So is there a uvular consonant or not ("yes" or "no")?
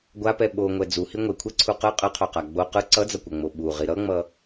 yes